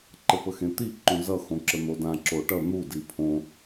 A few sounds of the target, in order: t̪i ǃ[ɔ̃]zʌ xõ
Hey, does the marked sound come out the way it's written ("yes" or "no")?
no